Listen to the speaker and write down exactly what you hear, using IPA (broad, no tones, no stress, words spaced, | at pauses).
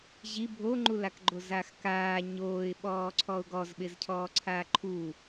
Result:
ʑi bʱoŋ͡ǃulakɡ͡ǃo zaxkaː ɲoːɪ̯ɓɔːǀʰɔʊ̯ ɡɔzɓɪz cʰɔːǀʰaːǃʰu